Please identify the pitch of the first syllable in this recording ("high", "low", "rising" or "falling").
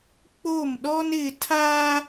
falling